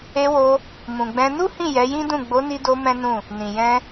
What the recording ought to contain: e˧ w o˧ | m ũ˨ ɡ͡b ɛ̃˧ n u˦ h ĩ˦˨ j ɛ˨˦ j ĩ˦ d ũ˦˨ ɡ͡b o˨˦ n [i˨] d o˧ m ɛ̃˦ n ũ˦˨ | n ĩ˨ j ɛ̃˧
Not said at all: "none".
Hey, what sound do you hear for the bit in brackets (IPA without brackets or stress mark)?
i˧